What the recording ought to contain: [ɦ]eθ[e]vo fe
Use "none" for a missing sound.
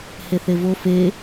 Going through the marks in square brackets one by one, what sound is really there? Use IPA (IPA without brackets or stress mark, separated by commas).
h, e